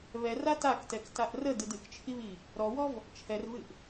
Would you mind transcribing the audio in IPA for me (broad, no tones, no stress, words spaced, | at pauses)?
βɛra taktɛktaʔ rədɨd ɨkt͡ʃʰiβi | ɾɔwɔv | t͡ʃʰɛrvɨʔ